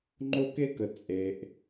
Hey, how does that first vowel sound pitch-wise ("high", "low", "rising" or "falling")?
high